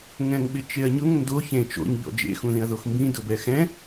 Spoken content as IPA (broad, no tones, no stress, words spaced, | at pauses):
ŋɛ̃ŋɓɪt͡ʃeɐ̯ɲʊŋ ndo çẽ t͡ʃo̰ɲʎɔ̰ d͡ʒḛxũðĩɐ̯ðox mbĩ dʊbɛxɛ̃